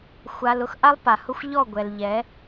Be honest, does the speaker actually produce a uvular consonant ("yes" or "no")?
no